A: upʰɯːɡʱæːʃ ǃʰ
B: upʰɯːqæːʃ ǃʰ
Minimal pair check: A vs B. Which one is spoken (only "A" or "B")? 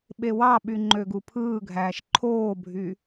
A